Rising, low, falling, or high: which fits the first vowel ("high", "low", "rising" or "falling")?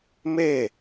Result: falling